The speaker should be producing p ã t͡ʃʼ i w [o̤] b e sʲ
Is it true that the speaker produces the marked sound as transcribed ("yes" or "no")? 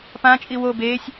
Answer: no